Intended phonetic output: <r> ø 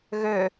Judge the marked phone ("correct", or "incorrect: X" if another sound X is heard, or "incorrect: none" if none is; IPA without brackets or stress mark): incorrect: ɣ